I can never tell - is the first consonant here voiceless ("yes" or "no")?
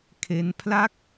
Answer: yes